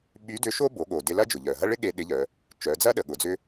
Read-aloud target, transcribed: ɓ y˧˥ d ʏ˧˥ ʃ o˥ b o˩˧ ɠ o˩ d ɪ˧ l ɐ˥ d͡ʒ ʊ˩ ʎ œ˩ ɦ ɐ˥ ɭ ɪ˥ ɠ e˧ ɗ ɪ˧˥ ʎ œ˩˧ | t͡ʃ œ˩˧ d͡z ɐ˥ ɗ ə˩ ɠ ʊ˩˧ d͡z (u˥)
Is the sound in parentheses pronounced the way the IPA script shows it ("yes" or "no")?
no